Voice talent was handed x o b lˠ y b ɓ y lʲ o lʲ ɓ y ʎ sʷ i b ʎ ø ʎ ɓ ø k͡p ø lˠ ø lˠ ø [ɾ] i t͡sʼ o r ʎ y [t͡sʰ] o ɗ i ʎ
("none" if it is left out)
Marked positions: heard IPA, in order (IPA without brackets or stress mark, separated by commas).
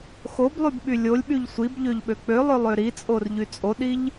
ɾ, t͡sʼ